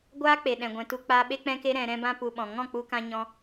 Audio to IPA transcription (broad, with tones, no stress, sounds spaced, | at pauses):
ɡʷ aː˦ k͡p e˨ ɗ ɛ̃˨ ɡʷ ɛ̃˧ t u˦ k͡p aː˦ ɓ e˦ k͡p ɛ̃˦ k e˦ ɾ ɛ̃˧ ɾ ɛ̃˦ b ã˦ p u˧ ɓ ɔ̃˨ ŋ ɔ̃˦˨ k͡p u˧ k ã˧ ɲ ɔ̃˦